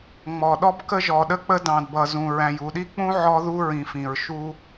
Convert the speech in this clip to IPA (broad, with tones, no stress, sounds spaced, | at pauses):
ŋ͡m ɔ˨ ɗ ɔ˦ b k ə˦ ʒ ɔ˨ ɗ ə˦ k͡p ə˦ d ɑ̃˨ d b ʌ˨ z ũ˨ ɹ æ̃˨ j u˨ ɗ i˦ k͡p ũ˦ ʕ ɔ˦ ð u˦ ɹ ĩ˨ f ĩ˨ ɹ ʃ u˦